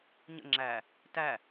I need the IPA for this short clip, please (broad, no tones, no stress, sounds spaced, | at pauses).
ɲ ə̰ ŋ͡ǁ æ | t æ